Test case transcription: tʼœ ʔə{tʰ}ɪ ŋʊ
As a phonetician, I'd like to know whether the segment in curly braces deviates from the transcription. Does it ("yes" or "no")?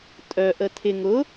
no